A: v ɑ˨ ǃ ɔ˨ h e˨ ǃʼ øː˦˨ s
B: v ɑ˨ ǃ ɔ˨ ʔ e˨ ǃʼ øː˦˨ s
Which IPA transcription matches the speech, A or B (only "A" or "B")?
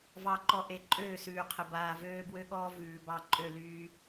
B